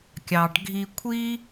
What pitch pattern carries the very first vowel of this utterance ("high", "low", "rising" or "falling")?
low